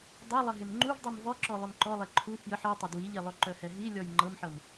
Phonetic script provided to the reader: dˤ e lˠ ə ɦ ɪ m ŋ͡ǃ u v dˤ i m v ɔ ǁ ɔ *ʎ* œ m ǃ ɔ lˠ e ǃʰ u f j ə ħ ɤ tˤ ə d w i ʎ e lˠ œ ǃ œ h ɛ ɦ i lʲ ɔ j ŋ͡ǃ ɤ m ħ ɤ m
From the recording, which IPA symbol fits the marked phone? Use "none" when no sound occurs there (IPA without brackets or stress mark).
lˠ